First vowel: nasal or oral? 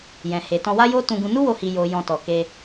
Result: nasal